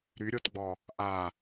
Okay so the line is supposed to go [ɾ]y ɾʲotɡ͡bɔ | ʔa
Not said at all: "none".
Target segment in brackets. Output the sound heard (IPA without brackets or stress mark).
ɾ